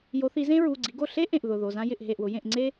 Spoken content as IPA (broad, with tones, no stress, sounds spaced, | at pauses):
j o˨˦ θ i˨˦ z ẽ˥ ɹ u˩˧˩ ɡ͡ǀ i˨˦ ɡ o˥˩ ɬ e˥ ʔ ẽ˥˩ ʔ ð ʊ˩˧˩ ð o˩˧˩ z ã˥ j ɪ˥˩ ʔ ɦ e˥˩ ʔ w ʊ˨˦ j ẽ˥˩ ʔ ŋ͡ǀ e˥